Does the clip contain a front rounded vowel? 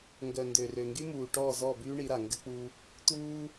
yes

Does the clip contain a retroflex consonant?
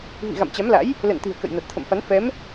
no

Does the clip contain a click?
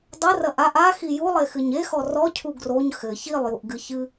no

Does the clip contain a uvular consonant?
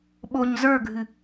no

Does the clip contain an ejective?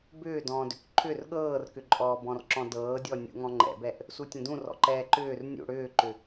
yes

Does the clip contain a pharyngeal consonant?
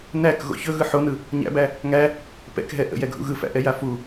yes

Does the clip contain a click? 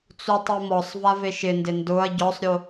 no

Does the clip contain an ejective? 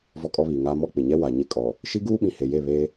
yes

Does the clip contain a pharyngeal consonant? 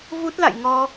no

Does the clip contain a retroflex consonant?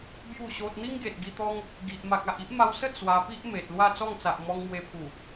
no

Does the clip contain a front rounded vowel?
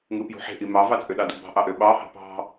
yes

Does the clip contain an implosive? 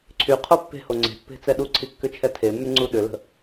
yes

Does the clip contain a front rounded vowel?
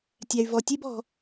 yes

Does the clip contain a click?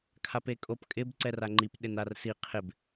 yes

